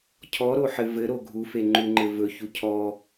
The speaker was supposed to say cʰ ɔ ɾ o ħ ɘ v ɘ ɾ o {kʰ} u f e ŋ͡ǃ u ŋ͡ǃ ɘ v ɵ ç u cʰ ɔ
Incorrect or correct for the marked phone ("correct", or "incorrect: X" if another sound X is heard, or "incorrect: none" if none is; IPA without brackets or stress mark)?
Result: incorrect: ɡʱ